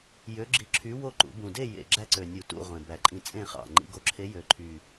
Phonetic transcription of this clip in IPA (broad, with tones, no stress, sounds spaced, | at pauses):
j ø˧˥ ɡ͡ǁ i˧˥ ǁʰ y˧˥ w o˥˨ ǃ ṵ˨˩˦ b ũ˨˩ d e˥˨ j ḛ˨˩ ɡ͡ǁ æ˥˨ ǀ ø˨˩ nʲ u˨˩˦ t ṵ˥˨ ʁʷ ẽ˨˩ b æ˨˩˦ ǃʼ ĩ˧ t͡sʼ ẽ˥˨ χ ɑ̰˨˩ ŋ͡ǃ ḭ˧ ɡ o˧ ǁʰ e˧˥ j ø˨˩ ǃʰ y˨˩